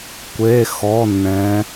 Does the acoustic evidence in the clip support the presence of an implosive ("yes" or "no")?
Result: no